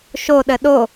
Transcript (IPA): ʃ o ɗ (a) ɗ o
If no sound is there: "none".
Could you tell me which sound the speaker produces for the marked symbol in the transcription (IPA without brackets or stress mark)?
ə